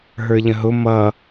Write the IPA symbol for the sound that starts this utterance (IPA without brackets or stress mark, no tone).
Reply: ɦ